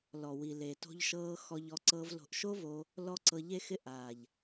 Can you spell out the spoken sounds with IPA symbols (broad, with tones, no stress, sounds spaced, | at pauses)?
l ɔ˨ w i˨ l e˨ t o̤˧ ʎ ʃ ɤː˧ x ɔ˧ ʎ ɔ˧ ǀ ɤː˧ v l o̤˨ ʔ ʃ o˦ v o˧ | l ɔ˦ ǀ ɤ˧ ʎ e˦ x ɪ˦ ʔ aː˨ ʎ